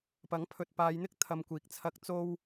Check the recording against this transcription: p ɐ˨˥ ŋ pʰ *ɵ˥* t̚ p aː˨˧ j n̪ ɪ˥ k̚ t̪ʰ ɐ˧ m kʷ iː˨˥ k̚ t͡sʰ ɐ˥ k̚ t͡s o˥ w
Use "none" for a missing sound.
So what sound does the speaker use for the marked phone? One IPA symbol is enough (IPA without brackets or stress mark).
ɵ˨